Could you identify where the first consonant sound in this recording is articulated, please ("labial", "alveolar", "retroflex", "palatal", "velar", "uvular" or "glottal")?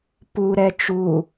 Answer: labial